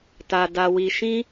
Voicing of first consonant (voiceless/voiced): voiceless